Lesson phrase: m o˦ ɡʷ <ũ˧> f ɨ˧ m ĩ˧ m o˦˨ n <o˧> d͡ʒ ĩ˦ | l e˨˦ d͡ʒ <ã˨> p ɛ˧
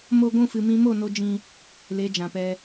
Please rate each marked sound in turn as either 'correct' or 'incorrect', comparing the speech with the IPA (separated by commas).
incorrect, correct, correct